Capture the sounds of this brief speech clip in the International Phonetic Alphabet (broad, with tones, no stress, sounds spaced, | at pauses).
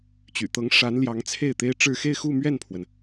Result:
t͡ɕ y̰˨˩ t̪ ɤ˧˥ ŋ ʂ a˧˥ n l j ɑ˧˥ ŋ t͡sʰ e˥˩ ɪ̯ t̪ e˥ ɪ̯ ʈ͡ʂ ɻ̩˥˧ x e˥˧ ɪ̯ x u˥˧ m ɥ ɛ˥˩ n pʰ w ə˩ n